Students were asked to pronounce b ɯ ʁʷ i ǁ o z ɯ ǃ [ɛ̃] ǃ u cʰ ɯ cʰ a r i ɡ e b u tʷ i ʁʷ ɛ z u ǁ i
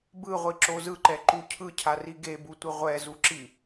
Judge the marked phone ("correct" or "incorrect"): incorrect